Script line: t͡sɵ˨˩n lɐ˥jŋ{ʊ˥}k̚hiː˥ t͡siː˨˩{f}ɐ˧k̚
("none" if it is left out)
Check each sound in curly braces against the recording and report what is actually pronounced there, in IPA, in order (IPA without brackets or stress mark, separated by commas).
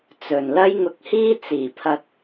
ʊ˧, pʰ